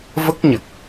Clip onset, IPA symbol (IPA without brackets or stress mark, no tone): v